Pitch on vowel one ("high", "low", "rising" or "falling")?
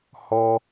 low